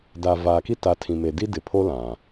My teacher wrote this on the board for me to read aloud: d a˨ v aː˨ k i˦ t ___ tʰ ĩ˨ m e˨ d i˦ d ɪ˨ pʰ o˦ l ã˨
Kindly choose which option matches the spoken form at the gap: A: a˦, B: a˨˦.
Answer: B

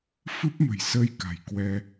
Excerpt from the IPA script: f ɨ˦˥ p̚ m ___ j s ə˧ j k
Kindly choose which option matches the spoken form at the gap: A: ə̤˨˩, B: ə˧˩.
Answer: A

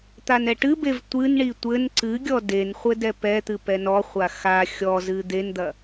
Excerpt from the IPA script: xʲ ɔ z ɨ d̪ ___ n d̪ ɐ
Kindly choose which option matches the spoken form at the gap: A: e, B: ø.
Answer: A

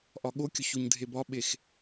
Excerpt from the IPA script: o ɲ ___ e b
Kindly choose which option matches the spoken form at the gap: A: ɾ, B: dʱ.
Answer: B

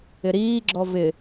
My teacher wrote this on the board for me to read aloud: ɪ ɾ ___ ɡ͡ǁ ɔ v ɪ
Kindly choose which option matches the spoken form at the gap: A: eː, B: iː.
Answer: B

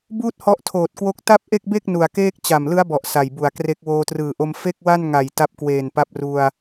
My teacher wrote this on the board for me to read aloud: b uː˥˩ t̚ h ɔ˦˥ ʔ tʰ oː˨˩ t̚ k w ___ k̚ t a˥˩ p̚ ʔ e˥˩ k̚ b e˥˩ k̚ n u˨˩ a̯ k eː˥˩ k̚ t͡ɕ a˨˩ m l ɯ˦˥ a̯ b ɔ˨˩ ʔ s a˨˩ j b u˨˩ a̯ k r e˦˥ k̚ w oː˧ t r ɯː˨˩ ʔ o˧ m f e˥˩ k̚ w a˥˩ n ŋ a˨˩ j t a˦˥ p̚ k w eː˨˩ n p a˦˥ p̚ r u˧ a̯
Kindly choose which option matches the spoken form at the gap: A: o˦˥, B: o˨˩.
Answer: A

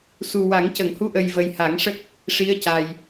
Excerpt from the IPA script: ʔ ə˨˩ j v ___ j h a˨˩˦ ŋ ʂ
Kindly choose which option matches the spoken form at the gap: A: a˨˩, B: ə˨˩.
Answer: B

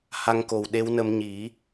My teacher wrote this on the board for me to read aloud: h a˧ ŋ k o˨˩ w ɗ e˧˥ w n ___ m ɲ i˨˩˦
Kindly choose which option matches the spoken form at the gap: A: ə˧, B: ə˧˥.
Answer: A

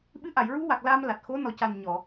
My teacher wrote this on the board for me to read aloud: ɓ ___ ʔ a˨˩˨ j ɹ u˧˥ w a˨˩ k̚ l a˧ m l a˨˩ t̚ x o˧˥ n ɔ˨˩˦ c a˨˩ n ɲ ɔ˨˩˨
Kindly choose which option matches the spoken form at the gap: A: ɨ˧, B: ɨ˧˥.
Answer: B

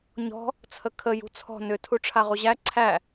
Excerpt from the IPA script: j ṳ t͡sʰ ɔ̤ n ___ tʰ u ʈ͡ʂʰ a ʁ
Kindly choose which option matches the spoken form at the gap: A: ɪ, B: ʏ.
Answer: B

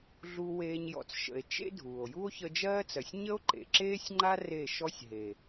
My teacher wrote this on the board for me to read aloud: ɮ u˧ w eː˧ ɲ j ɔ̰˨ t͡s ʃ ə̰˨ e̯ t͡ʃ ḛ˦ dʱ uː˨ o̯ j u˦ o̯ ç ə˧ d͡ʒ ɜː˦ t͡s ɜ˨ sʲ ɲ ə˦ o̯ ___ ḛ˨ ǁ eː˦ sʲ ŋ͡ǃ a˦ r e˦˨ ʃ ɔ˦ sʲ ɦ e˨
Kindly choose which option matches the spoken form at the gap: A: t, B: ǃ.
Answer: B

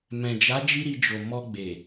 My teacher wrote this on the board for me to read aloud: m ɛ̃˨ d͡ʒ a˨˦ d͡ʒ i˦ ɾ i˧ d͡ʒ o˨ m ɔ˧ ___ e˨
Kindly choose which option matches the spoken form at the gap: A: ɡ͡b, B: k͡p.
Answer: A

